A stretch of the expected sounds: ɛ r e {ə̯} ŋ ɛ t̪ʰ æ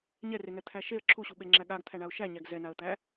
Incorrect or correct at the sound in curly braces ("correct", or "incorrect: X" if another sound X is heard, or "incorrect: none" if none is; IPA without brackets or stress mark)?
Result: incorrect: none